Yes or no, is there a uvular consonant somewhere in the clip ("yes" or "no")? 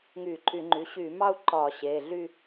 no